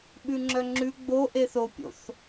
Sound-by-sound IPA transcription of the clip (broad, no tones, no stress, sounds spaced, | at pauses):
ɓ ʉ ŋ͡ǁ œ ŋ͡ǁ ʉ ɡ͡b o ʔ e θ o pʲ o̰ θ